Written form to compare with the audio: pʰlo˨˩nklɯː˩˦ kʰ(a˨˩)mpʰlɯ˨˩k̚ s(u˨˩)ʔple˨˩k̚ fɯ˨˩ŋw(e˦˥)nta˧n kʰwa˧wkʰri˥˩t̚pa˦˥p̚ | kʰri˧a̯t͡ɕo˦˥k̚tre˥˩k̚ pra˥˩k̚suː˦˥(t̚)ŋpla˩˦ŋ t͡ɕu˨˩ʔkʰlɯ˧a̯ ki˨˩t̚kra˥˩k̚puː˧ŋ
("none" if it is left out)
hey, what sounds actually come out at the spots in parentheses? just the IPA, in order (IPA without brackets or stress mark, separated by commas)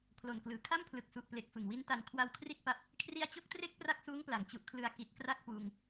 a˥˩, u˨˩, i˦˥, none